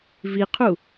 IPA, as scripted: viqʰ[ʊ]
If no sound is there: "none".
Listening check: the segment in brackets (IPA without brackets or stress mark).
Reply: u